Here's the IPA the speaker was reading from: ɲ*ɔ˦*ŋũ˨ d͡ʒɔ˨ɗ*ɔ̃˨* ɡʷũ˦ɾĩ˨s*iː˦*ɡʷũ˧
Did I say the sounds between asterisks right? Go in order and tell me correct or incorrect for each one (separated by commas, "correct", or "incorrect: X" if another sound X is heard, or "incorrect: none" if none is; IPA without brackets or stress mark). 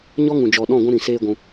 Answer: correct, incorrect: ɔ̃˦˨, incorrect: eː˦